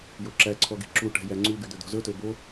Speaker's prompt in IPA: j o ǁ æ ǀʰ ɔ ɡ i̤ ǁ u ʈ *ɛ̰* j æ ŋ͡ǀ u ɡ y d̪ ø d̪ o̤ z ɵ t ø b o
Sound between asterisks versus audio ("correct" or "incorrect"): incorrect